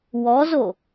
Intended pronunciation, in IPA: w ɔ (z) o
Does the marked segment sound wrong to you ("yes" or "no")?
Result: no